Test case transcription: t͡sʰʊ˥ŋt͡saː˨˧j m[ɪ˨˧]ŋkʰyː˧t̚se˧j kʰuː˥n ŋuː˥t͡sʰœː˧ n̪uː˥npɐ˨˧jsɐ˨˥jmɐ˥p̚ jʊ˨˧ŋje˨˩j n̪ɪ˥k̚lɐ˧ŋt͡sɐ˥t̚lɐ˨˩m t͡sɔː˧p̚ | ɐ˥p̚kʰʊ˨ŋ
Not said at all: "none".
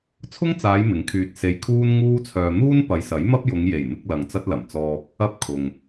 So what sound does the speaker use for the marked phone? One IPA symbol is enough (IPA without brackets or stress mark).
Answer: ɪ˨˥